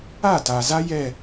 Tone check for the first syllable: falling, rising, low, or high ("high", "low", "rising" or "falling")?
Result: falling